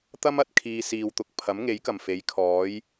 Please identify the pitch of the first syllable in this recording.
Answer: high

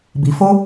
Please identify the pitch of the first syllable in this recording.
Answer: low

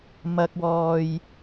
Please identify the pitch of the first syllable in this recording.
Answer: low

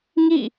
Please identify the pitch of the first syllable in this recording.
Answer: falling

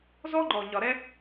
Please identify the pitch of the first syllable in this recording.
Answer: high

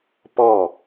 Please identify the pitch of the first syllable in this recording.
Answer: falling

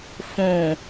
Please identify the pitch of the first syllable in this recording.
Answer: low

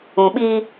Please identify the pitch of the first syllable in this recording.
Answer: low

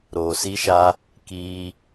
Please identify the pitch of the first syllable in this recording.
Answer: low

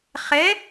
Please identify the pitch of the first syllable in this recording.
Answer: rising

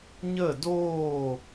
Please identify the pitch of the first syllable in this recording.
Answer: falling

